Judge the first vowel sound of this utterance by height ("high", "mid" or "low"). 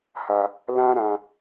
low